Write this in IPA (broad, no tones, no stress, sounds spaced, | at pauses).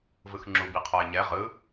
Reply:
v ɯ x ŋ͡ǁ u b i qʰ ɔ ɪ̯ ɲ ɛ ʁ ɯ